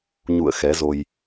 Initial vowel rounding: rounded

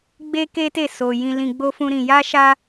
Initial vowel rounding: unrounded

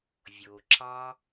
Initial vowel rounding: rounded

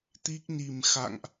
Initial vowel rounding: unrounded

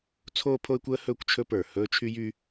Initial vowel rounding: rounded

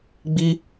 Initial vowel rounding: unrounded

